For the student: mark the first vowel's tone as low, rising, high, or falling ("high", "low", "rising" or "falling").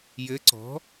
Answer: rising